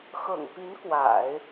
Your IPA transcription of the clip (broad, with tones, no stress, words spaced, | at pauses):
xɤ̰˨˩ŋpi˧˥n kwa̰˨˩˦ɪ̯